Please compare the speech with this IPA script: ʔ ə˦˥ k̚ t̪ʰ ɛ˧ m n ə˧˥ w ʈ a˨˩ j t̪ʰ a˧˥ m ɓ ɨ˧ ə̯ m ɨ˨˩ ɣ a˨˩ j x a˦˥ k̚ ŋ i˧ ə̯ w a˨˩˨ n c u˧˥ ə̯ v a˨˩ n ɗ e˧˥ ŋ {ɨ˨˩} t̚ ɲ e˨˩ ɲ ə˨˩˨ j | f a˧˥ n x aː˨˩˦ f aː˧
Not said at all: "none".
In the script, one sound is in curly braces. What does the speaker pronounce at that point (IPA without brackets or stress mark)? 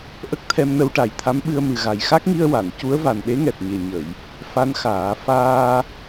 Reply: ɛ˨˩